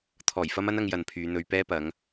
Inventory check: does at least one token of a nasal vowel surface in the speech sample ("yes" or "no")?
no